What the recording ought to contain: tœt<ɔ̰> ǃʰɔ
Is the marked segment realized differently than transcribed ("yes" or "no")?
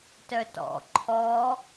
no